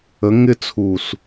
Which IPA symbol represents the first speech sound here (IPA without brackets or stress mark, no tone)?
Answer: ə